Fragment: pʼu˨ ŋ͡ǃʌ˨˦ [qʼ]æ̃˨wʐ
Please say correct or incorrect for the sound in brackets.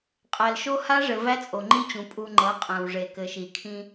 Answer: correct